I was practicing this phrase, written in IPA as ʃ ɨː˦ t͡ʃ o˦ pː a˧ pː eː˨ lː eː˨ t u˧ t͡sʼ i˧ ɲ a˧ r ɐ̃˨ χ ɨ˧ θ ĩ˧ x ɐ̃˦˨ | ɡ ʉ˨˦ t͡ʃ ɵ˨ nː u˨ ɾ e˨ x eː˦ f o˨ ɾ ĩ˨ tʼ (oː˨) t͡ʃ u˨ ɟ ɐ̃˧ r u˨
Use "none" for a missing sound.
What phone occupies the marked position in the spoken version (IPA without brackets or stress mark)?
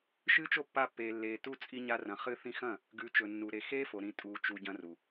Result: uː˨